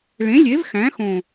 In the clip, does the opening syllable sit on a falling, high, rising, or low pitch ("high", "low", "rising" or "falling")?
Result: rising